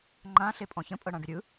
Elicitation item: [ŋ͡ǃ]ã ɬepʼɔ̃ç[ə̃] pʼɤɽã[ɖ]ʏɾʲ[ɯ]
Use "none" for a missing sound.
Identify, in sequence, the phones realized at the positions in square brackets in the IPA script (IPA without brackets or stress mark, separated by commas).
ŋ͡ǃ, ə̃, ɖ, ɯ